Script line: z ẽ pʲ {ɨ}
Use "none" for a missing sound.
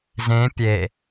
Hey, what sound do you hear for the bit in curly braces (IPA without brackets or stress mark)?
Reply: e